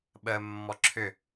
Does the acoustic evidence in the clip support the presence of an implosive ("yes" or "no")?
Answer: yes